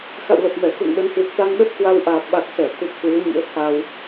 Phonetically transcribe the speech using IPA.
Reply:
xa̰˧˨wlə˨˩p̚mɛ˧˩ xṵ˧˨ŋ ɗə˨˦nhwɨ˨˩k̚t̪a˧ŋ ɗə˦˥p̚kwa˧w ʔaː˨˩p̚ɓa˨˩k̚sɛ˧˩t̪ʰu˨˩p̚ kwɨ˨˦ə̯ɲḭ˧˥ə̯ t̪ʰa˧w

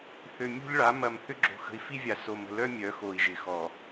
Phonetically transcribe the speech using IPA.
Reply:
θø˨mʲo̤˦ʎɭa˨˦ mɐ˨mθʏ˦ ɡ͡ǁo̤˨xə̤˨i̯fi˦vʲa˨ so˨mə̤˨lœ˦ mʲœ˨˦xo˨i̯ʒɪ˨xɔ˨

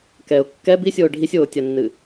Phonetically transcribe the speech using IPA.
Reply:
kɛʊ̯ kːɛ bisʲoː ɖʱisʲoːtʲanːɨ

